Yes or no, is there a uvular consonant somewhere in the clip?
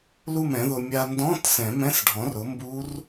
no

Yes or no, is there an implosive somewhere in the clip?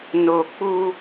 no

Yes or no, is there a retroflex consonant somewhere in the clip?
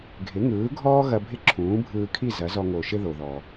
no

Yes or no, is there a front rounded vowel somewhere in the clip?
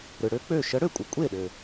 yes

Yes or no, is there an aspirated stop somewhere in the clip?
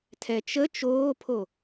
yes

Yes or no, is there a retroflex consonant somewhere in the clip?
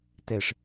yes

